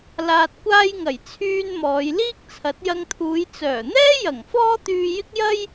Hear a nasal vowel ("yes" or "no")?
no